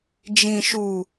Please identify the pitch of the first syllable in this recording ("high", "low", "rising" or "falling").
low